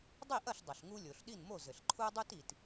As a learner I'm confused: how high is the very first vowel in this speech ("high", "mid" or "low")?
high